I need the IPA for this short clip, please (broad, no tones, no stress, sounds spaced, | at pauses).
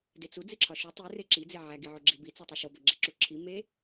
d e t͡s u d͡z i ǁʰ ɒ ʃ u tˤ i r e ǁ i d͡z e ʕ æ ɡ i ʕ o ɡ͡ǁ i b i t͡s u tˤ u ʃ o b ɒ ɡ͡ǁ e ǁ u ǁʰ i m e